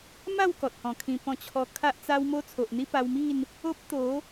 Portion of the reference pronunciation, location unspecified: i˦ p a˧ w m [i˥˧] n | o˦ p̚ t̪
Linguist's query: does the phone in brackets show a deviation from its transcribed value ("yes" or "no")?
no